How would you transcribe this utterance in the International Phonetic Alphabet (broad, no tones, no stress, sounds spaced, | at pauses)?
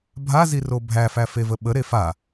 bʱ a z i r o bʱ æ f æ f e v ə ɓ ə ɾ e f a